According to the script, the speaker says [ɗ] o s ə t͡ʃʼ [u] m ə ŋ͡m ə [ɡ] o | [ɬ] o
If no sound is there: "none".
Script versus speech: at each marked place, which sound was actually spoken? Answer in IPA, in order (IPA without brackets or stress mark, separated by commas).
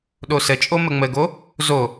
ɗ, o, ɡ, z